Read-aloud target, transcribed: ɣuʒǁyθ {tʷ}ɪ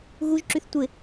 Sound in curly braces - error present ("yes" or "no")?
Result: no